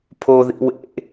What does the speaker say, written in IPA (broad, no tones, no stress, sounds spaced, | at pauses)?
pʰ o ð ḭ w ḛ